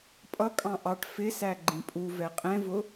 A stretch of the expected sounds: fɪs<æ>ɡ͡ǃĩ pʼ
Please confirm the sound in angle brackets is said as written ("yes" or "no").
yes